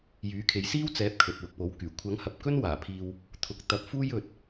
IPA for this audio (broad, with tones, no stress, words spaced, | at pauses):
jyː˨˥kʰe˨˥j siː˥wt͡sɛː˨˥p̚ kʰɵ˨t̚wʊ˨k̚po˨˥wkyː˨˩ kʷʰɐ˨˥ŋhɐ˨p̚kɵ˥n waː˨˩pʰiː˧w | t̪ʰʊ˨˥k̚t̪ɐ˨˥p̚fuː˥j ɵ˧t̚